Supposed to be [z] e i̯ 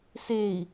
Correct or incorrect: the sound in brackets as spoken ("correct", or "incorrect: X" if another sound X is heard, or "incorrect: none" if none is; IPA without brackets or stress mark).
incorrect: s